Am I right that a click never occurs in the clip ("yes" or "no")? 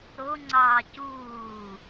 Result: no